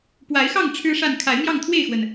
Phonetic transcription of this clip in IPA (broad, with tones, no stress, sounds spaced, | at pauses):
p w a˨˦ ɪ̯ x ɑ˥˨ ŋ ʈ͡ʂʰ ɻ̩˦ ʂ a˥˨ n kʰ a˨˦ ɪ̯ m j ɑ˥˨ ŋ t̪ʰ w e˥˨ ɪ̯ x w ə˩ n